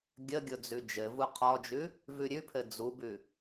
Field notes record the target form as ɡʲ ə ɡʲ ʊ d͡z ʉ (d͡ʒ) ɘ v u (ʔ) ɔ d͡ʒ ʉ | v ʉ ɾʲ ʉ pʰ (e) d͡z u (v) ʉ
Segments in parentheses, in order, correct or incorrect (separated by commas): correct, incorrect, incorrect, incorrect